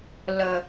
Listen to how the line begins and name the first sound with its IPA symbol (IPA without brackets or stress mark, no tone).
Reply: l